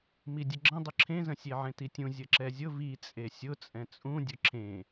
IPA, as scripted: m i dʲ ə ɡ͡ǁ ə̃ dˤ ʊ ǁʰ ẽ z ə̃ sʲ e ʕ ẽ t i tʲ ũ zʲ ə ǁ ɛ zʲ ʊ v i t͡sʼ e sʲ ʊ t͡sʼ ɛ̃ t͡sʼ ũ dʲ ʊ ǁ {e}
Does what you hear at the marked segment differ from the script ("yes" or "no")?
yes